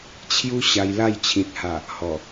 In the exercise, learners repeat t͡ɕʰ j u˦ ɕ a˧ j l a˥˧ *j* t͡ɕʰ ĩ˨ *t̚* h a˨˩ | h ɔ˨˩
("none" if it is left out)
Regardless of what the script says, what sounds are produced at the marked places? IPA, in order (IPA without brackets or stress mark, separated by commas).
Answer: j, t̚